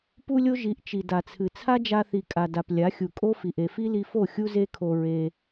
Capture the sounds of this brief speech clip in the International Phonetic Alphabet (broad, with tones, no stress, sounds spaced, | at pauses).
p u˦ lʲ o˦ ʒ i˨˦ ʔ t͡ʃ i˨ d a˨ t͡sʰ ɨ˨ t͡sʰ a˦ d͡ʒ a˧ θ i˨ kʼ a˨ d a˨ p lʲ a˨˦ xʲ u˨ kʼ o˦ f i˨ ʔ e˨ f i˦ l i˧ f o˦˨ xʲ u˦ z e˦ kʰ o˧ ɹ e˧